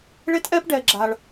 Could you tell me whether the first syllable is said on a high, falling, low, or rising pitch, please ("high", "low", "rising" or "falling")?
high